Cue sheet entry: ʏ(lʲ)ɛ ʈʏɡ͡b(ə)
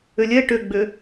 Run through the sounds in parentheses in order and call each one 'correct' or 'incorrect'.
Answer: correct, incorrect: ʏ

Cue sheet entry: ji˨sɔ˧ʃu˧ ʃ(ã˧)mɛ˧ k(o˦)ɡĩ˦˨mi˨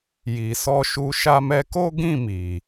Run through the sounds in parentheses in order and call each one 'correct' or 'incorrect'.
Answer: incorrect: a˧, correct

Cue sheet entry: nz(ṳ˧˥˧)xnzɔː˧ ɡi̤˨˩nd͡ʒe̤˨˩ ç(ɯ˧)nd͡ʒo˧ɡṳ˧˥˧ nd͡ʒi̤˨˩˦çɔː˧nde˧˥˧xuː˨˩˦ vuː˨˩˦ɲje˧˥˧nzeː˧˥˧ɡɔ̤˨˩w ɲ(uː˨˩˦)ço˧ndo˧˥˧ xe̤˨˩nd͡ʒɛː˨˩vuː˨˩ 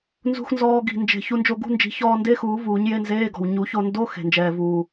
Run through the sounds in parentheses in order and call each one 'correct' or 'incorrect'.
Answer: correct, incorrect: u˧, incorrect: u˨˩˦

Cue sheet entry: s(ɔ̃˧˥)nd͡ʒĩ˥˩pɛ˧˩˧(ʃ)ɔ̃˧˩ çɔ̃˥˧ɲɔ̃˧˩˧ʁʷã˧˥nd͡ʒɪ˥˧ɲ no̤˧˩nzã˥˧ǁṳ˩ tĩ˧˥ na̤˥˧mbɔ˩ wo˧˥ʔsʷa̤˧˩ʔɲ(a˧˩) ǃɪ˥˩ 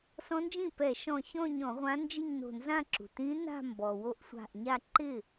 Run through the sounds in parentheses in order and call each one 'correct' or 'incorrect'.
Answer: correct, correct, incorrect: a˥˧

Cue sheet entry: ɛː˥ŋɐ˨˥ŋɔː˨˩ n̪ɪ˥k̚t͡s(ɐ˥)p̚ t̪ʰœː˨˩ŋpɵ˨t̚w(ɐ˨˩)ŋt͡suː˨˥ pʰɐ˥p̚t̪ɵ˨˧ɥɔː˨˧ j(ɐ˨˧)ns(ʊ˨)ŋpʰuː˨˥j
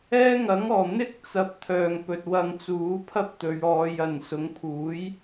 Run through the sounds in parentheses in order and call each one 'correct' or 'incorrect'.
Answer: incorrect: ɐ˨, incorrect: ɐ˧, incorrect: ɐ˨˩, incorrect: ʊ˨˧

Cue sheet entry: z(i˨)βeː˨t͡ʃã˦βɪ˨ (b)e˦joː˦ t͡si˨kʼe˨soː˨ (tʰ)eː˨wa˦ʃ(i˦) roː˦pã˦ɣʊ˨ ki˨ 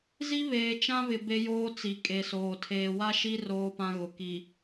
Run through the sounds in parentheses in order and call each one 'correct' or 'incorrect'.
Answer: incorrect: i˦, correct, correct, correct

